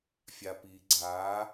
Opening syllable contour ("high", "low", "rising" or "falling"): low